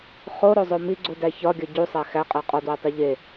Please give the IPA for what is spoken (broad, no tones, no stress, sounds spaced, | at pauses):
χ o ɾ o zˤ o m i ɡ͡ǀ u d æ ç ɒ ɡʲ ɒ ɟ u sˤ æ x æ qʼ æ qʼ ɒ d w e tˤ i ʎ e